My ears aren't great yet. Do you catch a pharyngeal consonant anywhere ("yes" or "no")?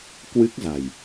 no